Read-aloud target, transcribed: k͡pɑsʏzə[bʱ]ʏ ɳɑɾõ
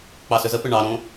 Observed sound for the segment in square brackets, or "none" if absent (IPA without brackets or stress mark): p